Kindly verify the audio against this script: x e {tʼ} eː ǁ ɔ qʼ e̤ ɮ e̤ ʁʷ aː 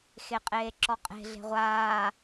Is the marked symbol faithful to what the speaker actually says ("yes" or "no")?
no